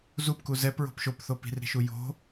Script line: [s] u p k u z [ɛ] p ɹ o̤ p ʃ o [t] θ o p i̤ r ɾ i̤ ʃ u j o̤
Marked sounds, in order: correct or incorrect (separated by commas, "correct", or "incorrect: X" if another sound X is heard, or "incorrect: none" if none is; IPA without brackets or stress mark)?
incorrect: z, correct, incorrect: p